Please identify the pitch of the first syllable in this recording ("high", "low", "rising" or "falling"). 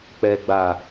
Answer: low